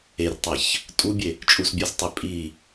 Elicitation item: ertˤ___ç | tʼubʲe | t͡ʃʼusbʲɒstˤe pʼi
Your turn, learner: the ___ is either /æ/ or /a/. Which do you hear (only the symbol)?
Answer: æ